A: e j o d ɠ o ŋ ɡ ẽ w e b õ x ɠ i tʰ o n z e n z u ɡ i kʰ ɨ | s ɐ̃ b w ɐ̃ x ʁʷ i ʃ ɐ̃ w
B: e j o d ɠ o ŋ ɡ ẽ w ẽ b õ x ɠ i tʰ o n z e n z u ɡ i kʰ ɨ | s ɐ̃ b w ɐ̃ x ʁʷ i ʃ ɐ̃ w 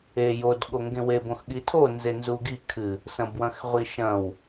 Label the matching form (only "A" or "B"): A